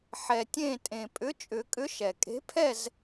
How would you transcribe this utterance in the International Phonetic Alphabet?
ħɛ˩tʲẽ˧˩tʼẽ˩ pʼʏ˨˥t͡ʃʼʏ˨˩˦kʼʏ˨˥ʃɛ˩ kʼe̤˨˥pʰɛ˥˨z

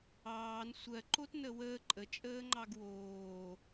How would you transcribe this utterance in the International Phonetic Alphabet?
ɑːn sʷɜ ǃotnəwəː ǃʼə t͡ʃʼəːŋ͡ǃɑɡwoː

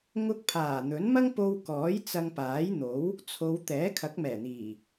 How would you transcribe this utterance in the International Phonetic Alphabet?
ŋʊ˧k̚pʰaː˨˩ n̪ɵ˨˥nmɐ˥ŋpo˧wkɔː˨˥j t͡sɐ˧ŋpaː˨˥jn̪o˨˥w | t͡sʰo˨˧w t̪ɛː˨˥kʰɐ˨˥k̚mɛː˨˩n̪iː˨˩

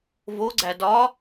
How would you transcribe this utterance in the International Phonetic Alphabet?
voɡ͡ǀæ dɒ

